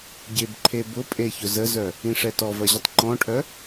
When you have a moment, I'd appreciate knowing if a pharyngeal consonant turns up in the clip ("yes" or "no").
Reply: no